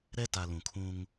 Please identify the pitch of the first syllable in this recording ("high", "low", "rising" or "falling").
high